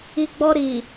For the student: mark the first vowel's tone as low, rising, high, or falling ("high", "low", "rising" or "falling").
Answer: low